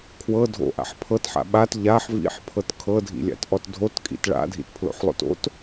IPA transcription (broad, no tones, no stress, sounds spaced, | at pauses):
kʰ w ɤ dʱ o̰ ʔ a̰ ħ pʰ ɤ t ħ a̰ ɓ a t ʎ a ħ v ḭ ħ pʰ ɤ t kʰ ɤ dʱ ḭ lʲ a̰ t ʔ ɔ t dʱ o t kʼ ḭ t ɭ a̰ dʱ ḭ t pʰ l o̰ ħ lˠ o̰ t o̰ t